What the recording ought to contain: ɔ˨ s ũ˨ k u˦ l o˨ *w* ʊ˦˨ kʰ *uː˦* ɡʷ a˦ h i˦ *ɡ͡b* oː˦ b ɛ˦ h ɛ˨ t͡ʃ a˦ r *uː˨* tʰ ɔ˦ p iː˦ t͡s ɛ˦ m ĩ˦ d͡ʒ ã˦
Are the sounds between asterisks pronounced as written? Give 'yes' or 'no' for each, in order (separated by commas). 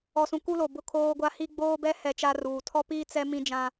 no, no, yes, yes